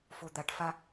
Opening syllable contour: low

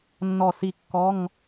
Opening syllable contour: falling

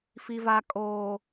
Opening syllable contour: low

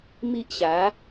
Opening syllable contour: high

